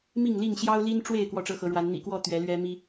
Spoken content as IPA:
m i˥˨ ŋ l i˥˨ ŋ ɕ j ɑ˦ ʊ̯ l i˦ n ʈ͡ʂ w e˥˨ ɪ̯ k w ɔ˥˨ ʈ͡ʂ ɤ˦ x ɤ˨˦ ɻ w a˨˦ n n̪ ḭ˨˩ k w ɔ˥˨ t̪ ɥ ɛ˨˦ l ɥ ɛ˦ m i˦

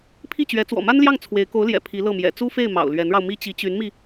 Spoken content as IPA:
pʰ i˥˩ t͡ɕ ɥ ɛ˧˥ t͡s w ɔ̰˨˩ m a˥ n l j ɑ˥˩ ŋ t͡sʰ w e˧˥ ɪ̯ k o˧˥ ʊ̯ l j ɛ̰˨˩ pʰ i˧˥ l ɤ˥˩ m j ɛ̰˨˩ t͡s u˥ f e˥˩ ɪ̯ m ɑ̰˨˩ ʊ̯ l ɥ ɛ˧˥ n ɻ ɑ˧ ʊ̯ m i˥ t͡ɕ i˧˥ t͡ɕ y˧˥ n m i˧

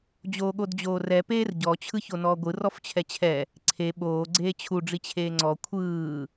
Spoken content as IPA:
d͡ʑ oː ɠ o d d͡ʑ oː r ɛ p eː r ɟ ɔ t͡ɕʰ ɯ ç o n ɔː ɡʷ ɯ r ɔ f t͡ɕʰ ɛ t͡ɕʰ ɛ | ǀʰ e ɓ oː ɡ͡ǀ eː t͡ɕʰ u ɖ͡ʐ i t͡ɕʰ eː ŋ͡ǀ ɔ kʷʰ ɯː

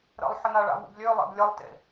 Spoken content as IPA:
ɾ ə̰ lˠ ħ ə n a ɭ a̰ v ṵ b lʲ ø lˠ ḛ b lʲ ə lˠ t ḛ

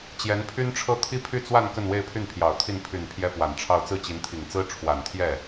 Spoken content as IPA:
t͡ɕ j ɛ˧˥ n pʰ y˥ n ʈ͡ʂʰ ɤ˥ t̪ʰ i˥ pʰ y˥˧ t͡s w a˥˧ n k ə˥˧ n w e˥˧ ɪ̯ pʰ y˥˩ n pʰ j ɑ˨˩ ʊ̯ t̪ʰ i˥˩ n pʰ y˨˩ n pʰ j ɛ˥ p w a˨˩ n ʈ͡ʂʰ ɑ˥˧ ʊ̯ t͡s ɹ̩˥˩ t͡ɕ i˧˥ n t̪ʰ i˨˩ ŋ t͡s ɹ̩˥ ʈ͡ʂʰ w a˨˩ n t̪ʰ j ɛ˥˩

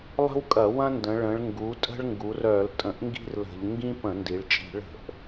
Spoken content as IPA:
lˠ ə̤˦ w kʼ ɐ˧˩˧ w ɐ̃˦ n d ə̃˩˧ ɭ ə̃˩˧ ɭ ŋ ɡ u˩˧ tʼ ə̤˦ ɭ ŋ ɡ u˩˧ r œ˧˩˧ l tʼ ə̃˧˩˧ ʔ ŋ ɡ i̤˦ r l ə̤˧˩˧ ʎ ŋ ɡ ĩ˦ p ə̃˧˩˧ n d i˩˧ ɭ t͡ʃʼ i̤˧˩˧ ɭ ə̤˧˩˧ ʔ

